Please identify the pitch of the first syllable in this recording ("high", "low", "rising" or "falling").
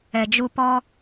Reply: low